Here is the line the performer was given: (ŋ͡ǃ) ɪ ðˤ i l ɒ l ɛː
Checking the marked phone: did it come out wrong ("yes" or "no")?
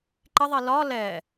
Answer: yes